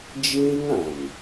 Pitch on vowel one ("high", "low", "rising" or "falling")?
high